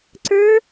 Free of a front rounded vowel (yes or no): yes